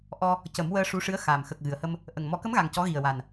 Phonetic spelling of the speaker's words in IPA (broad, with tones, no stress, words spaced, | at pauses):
ʔɔ˧ | cə˨˩˦mwəː˧ ʂu˧˥ʂɨ˧˥ə̯ xaː˨˩m xə˨˩k̚ ɣɨ˨˩ə̯hə˧m | ʔə˨˩ŋ mɔ˨˩˦kə˧˥mɣa˨˩ŋ cɔ˧˥ɣi˨˩ə̯wa˨˩n